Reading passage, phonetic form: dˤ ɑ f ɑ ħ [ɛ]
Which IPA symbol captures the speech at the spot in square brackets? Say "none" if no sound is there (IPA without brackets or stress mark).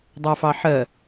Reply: ɜ